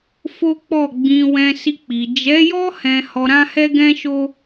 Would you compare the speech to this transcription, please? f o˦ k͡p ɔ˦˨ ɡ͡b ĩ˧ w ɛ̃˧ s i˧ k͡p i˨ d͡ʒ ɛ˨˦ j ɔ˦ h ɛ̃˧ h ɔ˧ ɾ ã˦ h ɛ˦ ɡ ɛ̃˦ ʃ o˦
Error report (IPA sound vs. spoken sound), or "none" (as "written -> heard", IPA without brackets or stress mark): none